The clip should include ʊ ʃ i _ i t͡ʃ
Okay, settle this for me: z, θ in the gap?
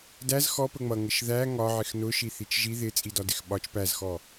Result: θ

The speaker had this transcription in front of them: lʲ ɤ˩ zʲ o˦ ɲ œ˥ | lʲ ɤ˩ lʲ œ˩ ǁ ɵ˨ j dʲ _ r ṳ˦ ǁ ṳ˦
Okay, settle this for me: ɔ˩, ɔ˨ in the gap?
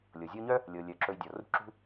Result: ɔ˩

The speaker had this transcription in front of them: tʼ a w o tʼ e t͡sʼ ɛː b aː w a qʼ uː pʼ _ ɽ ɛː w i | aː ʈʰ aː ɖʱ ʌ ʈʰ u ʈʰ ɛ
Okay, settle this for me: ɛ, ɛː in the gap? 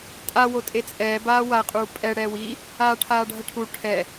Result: ɛ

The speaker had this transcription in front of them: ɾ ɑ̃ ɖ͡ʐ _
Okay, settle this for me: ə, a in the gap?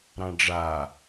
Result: a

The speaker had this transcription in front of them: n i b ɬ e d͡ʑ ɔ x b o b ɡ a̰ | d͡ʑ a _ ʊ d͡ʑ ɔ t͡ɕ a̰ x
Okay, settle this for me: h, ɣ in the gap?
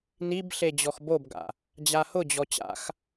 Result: h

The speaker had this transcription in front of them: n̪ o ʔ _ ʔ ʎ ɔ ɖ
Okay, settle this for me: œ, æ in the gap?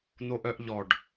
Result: œ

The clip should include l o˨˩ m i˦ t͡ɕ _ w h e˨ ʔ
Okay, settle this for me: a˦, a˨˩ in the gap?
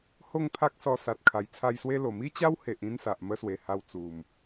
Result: a˦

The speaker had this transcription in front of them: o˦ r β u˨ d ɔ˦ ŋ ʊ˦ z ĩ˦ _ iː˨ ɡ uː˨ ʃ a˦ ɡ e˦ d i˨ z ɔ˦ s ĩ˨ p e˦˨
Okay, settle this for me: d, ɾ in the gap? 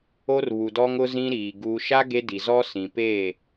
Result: ɾ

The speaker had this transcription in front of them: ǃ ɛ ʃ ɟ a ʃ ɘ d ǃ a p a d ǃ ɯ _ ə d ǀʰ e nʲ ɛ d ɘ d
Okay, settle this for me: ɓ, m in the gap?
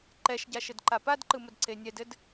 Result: m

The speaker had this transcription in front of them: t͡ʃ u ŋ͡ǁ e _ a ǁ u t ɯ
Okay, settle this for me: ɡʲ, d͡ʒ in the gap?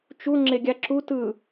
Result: ɡʲ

